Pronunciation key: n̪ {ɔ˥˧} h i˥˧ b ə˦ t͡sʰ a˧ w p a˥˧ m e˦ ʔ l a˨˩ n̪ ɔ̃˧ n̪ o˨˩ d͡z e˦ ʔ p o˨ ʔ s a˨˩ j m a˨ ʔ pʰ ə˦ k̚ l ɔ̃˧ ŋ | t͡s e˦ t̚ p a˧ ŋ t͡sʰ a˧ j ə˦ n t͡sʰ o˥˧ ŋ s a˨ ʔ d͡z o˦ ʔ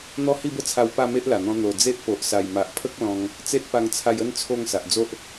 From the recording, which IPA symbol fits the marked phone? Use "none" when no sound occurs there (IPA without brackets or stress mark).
ɔ˥˧